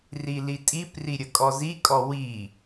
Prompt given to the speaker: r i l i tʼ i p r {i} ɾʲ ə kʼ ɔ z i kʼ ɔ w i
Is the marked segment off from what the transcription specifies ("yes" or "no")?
no